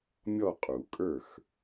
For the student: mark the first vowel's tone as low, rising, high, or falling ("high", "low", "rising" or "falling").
falling